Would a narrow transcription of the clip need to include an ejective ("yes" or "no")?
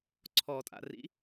yes